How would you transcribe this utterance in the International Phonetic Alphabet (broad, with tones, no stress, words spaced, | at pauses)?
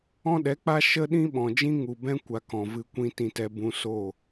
ɔ̃˦ɗɛ˨˦k͡pa˦ ʃə˦ ɗĩ˦ɓɔ̃˨d͡ʒĩ˦ ŋu˨bɛ̃˦ kʷa˧kɔ̃˨ vɨ˧kʷĩ˧ tĩ˧tɛ˧ bũ˧so˦˨